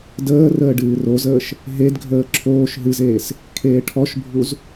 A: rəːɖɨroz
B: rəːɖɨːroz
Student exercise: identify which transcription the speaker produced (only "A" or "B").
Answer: B